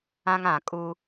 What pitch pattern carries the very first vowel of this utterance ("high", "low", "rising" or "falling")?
high